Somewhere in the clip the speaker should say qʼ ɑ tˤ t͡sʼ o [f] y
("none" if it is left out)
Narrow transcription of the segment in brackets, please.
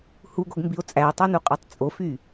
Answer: f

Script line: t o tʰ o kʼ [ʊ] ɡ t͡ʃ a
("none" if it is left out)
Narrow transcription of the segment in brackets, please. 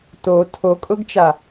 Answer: ʊ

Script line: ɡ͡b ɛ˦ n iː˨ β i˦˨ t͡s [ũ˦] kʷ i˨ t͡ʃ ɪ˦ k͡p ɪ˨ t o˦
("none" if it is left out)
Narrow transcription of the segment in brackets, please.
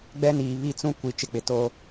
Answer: ũ˦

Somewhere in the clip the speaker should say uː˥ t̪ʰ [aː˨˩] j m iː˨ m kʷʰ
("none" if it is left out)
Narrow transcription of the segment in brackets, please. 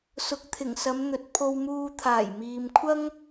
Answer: aː˨˩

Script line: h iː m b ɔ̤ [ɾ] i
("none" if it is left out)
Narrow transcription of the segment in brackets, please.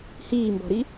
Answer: ɾ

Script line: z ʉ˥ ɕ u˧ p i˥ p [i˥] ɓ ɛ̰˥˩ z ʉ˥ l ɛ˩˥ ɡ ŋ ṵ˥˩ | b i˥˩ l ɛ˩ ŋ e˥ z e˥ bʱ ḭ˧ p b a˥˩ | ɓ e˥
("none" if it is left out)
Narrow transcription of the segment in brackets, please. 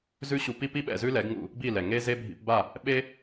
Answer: i˥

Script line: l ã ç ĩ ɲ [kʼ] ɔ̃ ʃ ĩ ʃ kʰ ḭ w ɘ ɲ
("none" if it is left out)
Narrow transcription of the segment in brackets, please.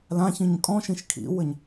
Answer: kʼ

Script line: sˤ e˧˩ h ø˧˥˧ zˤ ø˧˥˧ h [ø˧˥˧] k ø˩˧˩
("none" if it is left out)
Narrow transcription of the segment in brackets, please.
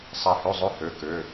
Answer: ø˩˧˩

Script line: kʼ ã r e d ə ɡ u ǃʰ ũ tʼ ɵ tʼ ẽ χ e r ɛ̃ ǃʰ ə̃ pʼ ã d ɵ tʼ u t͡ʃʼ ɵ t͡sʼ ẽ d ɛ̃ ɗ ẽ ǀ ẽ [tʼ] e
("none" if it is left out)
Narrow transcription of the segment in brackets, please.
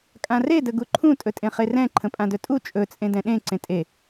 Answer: tʼ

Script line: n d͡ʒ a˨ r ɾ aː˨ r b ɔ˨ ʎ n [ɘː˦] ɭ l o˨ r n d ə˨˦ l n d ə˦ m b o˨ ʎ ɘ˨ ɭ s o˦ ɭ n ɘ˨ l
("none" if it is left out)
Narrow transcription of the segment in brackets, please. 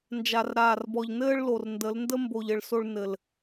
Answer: ɘː˦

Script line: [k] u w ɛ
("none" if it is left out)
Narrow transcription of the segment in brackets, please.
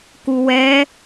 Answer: k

